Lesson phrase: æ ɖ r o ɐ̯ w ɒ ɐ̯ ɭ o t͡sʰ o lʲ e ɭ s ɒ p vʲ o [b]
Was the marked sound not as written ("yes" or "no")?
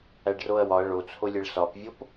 yes